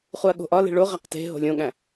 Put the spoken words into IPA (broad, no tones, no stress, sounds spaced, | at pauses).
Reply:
χ u ɐ̯ ɠ o̤ ʔ ɒ l e̤ ɭ o ʁ æ q t e̤ ɦ o̤ lʲ õ ɠ æ̃